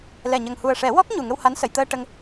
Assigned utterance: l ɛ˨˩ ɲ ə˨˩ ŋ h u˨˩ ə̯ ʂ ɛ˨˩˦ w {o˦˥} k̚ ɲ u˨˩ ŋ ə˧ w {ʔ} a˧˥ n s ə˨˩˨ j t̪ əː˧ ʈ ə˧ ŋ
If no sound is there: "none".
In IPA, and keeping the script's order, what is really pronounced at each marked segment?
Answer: ɔ˦˥, h

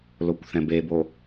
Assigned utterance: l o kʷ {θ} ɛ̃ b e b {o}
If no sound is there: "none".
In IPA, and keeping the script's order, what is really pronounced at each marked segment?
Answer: θ, o

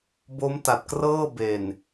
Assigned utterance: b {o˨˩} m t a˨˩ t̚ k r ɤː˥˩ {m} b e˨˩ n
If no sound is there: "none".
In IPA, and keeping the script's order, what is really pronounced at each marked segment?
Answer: o˦˥, none

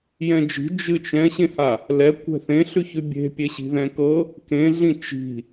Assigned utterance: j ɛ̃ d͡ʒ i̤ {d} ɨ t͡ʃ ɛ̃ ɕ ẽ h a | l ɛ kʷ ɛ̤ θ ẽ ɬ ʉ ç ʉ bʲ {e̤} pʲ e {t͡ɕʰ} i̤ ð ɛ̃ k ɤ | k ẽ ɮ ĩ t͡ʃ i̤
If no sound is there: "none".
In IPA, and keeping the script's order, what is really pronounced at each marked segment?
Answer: d͡ʒ, e̤, ɕ

